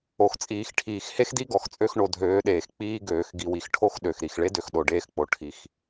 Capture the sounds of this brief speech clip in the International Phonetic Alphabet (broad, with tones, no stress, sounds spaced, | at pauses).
o˨ x t͡sʼ iː˨ x ʈʰ iː˨ x h e˦ x d i˦ ɡ ɔ˨ x t͡sʼ ø˦ x ɳ o˨ dʱ øː˨˦ ɗ eː˨ x k͡p iː˦ ɡ øː˨ x ɡ i˨ w i˨ x ʈʰ o˦ x ɗ ø˨ x ɾ i˨ x ɭ e˦ d ø˨ x ɗ o˨ ɖ eː˦ x k͡p o˨ ʈʰ i˦ x